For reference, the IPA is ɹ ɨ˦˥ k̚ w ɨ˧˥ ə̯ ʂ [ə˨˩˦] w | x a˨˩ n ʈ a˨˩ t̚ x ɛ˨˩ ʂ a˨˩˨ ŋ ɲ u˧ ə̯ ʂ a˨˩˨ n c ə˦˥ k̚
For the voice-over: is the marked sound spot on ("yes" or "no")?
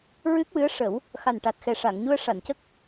yes